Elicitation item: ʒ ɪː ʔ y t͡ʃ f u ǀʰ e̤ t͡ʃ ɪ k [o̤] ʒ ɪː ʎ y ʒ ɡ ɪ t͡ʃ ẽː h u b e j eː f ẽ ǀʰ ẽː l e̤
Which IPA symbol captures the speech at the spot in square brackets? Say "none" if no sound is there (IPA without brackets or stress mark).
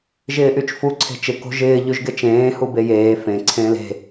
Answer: o̤